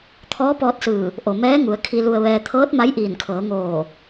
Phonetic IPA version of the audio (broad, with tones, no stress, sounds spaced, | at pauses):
t̪ʰ ɔː˧˥ p ɔː˧ t̚ s ɯː˧˩ | ʔ o˩ m ɛː˧˥ ŋ u˩˧ ə̯ kʰ i˧ l u˧ ə̯ ʋ ɛː˧ t̪ʰ ɤː˧˥ t̚ m a˧˥ j ʔ iː˧˩ n kʰ ɤː˩˧ ŋ oː˧˩